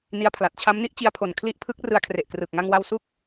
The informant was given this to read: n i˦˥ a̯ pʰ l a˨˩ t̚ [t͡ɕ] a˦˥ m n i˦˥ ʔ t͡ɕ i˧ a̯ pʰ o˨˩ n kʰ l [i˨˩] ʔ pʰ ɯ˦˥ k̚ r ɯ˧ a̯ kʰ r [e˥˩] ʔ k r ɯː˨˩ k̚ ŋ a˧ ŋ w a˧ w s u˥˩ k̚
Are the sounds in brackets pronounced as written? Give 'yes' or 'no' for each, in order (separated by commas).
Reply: no, no, no